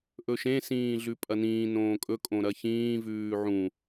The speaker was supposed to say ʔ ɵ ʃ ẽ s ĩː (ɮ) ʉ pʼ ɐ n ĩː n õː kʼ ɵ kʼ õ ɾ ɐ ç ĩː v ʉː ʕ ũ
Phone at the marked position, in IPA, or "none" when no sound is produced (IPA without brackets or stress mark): ɮ